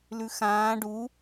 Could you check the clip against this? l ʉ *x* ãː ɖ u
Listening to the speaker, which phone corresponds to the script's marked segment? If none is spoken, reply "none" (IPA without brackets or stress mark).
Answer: x